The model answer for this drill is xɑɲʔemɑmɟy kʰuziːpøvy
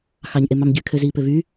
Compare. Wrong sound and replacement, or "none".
u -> ø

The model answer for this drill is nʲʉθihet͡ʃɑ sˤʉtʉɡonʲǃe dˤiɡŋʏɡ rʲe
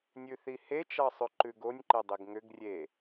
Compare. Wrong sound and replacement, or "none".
t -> ǃ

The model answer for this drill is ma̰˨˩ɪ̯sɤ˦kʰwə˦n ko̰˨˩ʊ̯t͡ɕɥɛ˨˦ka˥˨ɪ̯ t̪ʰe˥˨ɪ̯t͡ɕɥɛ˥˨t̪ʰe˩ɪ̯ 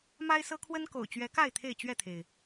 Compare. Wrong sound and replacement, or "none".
a̰˨˩ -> a˦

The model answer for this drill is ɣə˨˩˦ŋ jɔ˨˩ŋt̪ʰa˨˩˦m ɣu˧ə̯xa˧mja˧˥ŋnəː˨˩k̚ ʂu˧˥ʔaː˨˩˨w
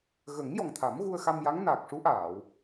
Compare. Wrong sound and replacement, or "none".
əː˨˩ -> aː˨˩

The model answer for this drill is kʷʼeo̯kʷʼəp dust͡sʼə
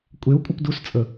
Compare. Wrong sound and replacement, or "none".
none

